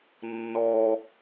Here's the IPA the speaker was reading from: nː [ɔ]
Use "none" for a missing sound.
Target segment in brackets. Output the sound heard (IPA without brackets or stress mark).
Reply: ɔ